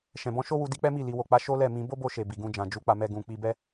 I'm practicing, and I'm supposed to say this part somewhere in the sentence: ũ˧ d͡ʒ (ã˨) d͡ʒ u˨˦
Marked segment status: correct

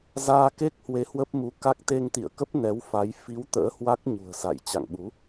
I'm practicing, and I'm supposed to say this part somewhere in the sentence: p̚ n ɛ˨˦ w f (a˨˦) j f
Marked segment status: correct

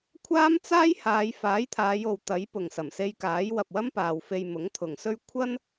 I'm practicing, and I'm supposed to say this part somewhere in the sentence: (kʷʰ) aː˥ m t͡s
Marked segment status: correct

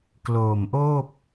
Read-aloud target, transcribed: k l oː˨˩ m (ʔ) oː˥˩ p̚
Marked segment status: correct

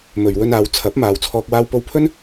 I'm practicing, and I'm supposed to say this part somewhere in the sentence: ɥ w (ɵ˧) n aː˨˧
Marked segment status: correct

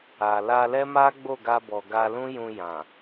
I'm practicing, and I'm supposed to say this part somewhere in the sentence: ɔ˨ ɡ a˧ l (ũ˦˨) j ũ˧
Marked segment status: incorrect: ũ˦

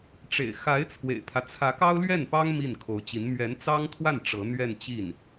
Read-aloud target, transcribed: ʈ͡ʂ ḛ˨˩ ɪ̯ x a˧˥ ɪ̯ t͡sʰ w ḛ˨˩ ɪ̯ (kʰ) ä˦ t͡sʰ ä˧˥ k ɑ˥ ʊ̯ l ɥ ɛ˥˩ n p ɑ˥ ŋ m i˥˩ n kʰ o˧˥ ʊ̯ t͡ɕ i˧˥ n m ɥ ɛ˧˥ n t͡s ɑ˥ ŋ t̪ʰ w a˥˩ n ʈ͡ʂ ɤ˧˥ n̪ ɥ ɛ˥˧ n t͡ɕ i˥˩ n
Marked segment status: incorrect: pʰ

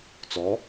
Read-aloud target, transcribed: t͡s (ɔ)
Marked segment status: correct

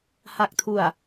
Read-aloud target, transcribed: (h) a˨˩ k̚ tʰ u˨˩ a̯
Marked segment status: correct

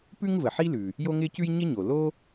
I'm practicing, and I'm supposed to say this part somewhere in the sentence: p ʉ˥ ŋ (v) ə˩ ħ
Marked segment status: correct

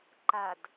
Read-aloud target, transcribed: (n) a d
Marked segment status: incorrect: ǃ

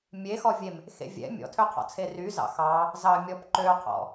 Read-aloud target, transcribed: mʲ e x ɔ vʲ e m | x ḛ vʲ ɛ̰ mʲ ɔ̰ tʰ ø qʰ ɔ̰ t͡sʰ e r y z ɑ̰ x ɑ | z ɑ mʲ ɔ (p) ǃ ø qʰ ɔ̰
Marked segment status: correct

